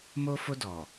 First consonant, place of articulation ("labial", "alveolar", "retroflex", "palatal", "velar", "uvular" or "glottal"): labial